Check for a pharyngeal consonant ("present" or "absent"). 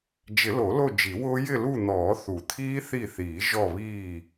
absent